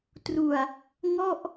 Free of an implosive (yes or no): yes